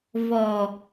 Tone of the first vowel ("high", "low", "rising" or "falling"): low